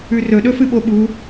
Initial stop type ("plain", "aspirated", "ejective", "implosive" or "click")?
implosive